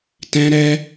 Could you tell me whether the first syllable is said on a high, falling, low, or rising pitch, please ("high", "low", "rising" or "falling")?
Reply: high